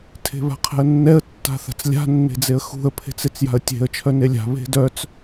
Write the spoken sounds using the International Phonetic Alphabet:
tʰe̤βa̤qʰɛ̤ə̯nːɛə̯ tːa̤θa̤t͡slʲa̤ nːe̤d͡zeə̯xṳə̯ pʰe̤t͡set͡sja̤ə̯tʲe̤ə̯ t͡ʃʰœnelʲa̤ βe̤dœt͡s

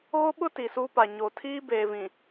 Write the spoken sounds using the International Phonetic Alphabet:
ɣo˦ɓʊ˦ ti˨su˦ pa˨ ɲo˨ tʰiː˦beː˨vĩ˨

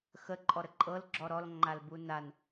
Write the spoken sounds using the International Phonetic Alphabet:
xəǃʼɔɾə ǃʼɤlɡ͡ǁɔ ɾɔlŋ͡ǃalbu nan

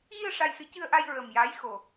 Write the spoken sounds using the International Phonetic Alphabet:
ɣi˧ə̯ ʂa˧jsɨ˧˥ cɨ˧ə̯ʔa˧j ɹə˨˩m jaː˧˥jxo˨˩

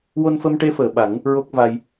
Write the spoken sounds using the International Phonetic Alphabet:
wo˧nfə˧mʈe˧˥ fəː˨˩ɓa˨˩˦ŋ | ɹo˦˥k̚va˧j

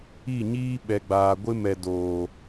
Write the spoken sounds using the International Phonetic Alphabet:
i˦˨ɲiː˦ ɓɛ˨ɡ͡baː˨ɡʷɪ˦mɛ˨ doː˨

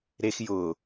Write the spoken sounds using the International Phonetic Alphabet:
ɾex jʊ

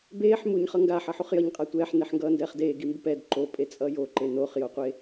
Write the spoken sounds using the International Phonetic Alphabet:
beːħ muɲχʌ ŋɡaħʌ ħuχjʌɲqʼa tʷɛːħneħŋɡʌː ndɛːχdeːɡimbup ɛd ǃo pʼet͡sʼʌjo ǃenoχjoqʷe

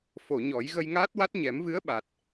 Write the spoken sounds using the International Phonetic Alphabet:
fo˨˩˨ɲɔ˨˩˦j ɣə˧jŋaː˦˥t̚wa˦˥t̚ ɲɛ˨˩˦mvɨ˧˥ə̯ɓa˨˩t̚

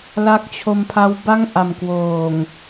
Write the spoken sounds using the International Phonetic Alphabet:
la˦˥k̚t͡ɕʰo˧mpʰa˦˥w ba˥˩ŋʔa˨˩m kwoː˨˩ŋ

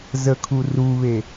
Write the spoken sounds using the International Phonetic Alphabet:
zəkʰu ruβe

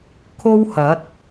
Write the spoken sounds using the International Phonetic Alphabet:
kʰo˥whɐ˨˥t̚

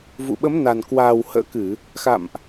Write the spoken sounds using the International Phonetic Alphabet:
vṵ˧˨ɓə˨˦mna˨˩n kwaː˨˩whə̰ː˧˥kɨ˧˩˨ | xa̰˧˨mʔ

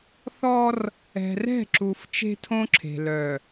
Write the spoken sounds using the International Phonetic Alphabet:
θɔ˦r | ɛ̤˨rɛ̤˦˨ǁu˨f t͡ʃe̤˦tʰõ˦ǁʰe̤˨ lœ˨

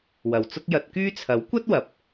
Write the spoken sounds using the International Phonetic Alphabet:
wɐ˨wt͡sʊ˥k̚ jɐ˧t̚kyː˥ t͡sʰɐ˨˥wkʷɐ˥t̚ wɐ˨p̚

